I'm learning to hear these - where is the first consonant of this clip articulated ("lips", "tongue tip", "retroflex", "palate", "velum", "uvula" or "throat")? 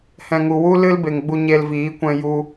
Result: throat